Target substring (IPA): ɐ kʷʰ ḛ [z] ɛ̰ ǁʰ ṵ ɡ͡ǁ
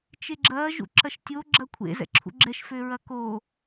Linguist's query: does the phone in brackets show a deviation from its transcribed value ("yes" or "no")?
no